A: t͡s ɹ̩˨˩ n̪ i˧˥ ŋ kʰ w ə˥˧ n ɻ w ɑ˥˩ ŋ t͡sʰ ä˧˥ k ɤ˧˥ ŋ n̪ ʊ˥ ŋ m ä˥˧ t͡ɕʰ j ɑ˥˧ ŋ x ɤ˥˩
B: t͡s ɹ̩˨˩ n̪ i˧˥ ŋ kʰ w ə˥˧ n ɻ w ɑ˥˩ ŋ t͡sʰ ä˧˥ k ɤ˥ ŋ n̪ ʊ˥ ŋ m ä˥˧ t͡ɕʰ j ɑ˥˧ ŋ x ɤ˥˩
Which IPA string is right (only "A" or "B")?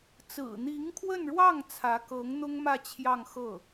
A